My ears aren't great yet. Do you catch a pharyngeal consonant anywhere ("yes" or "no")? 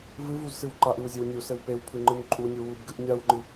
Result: no